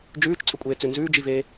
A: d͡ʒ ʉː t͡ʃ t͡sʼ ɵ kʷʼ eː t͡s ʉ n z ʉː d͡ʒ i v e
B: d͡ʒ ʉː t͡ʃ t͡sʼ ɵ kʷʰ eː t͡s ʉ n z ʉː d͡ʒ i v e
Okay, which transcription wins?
A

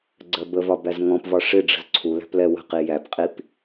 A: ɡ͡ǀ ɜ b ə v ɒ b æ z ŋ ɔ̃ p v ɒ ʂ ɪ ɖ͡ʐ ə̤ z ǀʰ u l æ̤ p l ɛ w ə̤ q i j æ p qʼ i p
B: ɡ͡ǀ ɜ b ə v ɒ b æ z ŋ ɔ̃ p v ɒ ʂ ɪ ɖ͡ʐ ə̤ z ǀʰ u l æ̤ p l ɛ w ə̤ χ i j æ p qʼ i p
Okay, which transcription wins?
A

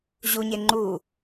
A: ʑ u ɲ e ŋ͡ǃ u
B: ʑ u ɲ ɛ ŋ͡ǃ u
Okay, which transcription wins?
A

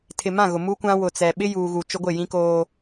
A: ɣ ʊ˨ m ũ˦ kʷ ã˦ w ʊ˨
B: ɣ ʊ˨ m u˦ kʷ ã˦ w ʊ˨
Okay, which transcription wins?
B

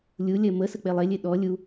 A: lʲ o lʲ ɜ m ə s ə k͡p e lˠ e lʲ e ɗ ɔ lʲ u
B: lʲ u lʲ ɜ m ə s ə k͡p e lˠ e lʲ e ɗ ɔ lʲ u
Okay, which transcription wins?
B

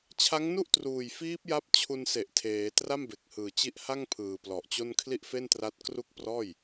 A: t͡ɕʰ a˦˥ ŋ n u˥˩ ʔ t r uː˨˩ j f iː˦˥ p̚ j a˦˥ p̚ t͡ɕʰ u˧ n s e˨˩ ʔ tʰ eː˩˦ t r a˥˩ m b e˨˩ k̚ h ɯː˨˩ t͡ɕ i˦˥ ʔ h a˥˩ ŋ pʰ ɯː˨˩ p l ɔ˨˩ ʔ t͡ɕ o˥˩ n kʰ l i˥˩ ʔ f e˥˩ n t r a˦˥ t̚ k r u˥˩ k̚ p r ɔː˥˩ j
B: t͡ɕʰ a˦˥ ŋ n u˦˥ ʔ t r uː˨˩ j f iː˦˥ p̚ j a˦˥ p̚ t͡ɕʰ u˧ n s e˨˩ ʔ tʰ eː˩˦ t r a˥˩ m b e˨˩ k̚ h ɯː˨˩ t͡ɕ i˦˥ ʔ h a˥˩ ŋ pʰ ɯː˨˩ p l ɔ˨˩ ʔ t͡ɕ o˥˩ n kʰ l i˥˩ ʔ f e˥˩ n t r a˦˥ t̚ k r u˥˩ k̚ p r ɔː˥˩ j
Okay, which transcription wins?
A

